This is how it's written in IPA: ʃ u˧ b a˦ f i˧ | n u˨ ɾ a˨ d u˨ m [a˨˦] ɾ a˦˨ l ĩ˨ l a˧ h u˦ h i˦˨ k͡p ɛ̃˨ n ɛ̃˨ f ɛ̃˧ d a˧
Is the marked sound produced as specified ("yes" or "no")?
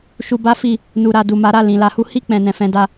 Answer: yes